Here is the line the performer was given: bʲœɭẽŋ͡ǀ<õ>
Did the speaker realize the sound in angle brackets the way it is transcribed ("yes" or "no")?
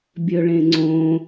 yes